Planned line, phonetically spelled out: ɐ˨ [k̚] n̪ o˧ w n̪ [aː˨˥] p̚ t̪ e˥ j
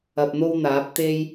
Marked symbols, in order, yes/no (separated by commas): no, yes